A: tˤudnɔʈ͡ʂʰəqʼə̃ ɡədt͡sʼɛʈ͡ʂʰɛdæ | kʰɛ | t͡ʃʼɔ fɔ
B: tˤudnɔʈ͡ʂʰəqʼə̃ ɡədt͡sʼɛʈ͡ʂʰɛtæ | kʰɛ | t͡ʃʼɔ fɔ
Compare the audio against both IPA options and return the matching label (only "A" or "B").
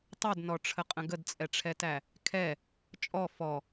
B